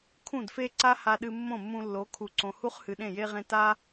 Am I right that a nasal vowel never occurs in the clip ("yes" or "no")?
no